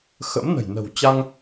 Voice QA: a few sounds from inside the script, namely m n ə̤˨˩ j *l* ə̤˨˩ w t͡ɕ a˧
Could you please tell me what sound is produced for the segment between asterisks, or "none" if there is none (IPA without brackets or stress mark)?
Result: n